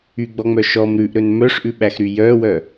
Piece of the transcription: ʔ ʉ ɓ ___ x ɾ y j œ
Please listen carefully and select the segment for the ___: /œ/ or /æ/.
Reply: æ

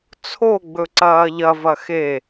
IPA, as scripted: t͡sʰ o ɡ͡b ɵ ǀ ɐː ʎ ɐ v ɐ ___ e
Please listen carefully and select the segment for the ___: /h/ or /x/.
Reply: x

